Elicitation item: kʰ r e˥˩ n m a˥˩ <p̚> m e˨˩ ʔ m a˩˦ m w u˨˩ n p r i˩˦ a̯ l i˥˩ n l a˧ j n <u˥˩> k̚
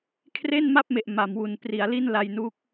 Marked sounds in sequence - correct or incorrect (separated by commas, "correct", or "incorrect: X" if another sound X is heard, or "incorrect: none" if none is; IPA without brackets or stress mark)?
correct, incorrect: u˦˥